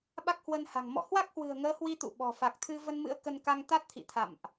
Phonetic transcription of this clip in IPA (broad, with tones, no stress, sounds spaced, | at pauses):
ɓ a˦˥ k̚ h w ə˧ n h a̤˨˩ ŋ m ɔ̰˧˨ h w a˦˥ k̚ h w ɨ̤˨˩ ə̯ ŋ əː˨˦ h w i˧ t̪ ṵ˧˨ ɓ ɔ̤˨˩ f a˨˩ k̚ t̪ʰ ɨ˧ v ə˧ n m ɨ̰˧˥ ə̯ k ə˧ n k a˧ ŋ t̪ a˦˥ t̚ t̪ʰ ḭ˧˨ t̪ʰ a̰˧˨ m ʔ